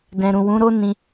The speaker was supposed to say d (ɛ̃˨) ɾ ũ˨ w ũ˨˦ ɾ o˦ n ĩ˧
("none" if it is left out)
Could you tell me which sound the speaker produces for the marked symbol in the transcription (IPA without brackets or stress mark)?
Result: ɛ̃˨